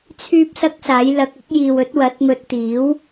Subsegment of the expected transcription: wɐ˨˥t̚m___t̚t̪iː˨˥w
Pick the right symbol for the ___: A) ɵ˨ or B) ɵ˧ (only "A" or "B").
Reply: B